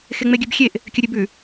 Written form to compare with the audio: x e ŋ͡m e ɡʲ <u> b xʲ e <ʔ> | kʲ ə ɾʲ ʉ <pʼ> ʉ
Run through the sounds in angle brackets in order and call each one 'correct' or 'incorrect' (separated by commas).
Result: incorrect, correct, incorrect